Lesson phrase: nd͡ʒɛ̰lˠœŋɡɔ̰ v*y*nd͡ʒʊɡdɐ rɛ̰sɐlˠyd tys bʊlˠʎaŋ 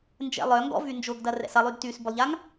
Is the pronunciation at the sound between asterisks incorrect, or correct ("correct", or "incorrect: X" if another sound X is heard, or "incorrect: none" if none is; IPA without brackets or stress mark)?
correct